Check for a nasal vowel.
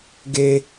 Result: absent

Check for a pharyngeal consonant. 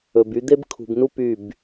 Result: absent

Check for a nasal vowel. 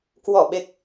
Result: absent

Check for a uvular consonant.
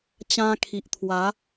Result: absent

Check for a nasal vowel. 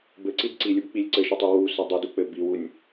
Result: absent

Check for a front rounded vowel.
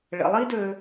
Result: present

